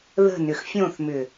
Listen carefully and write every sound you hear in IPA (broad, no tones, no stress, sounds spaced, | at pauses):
ð ə̤ n ʏ x fʲ õ θ m ʏ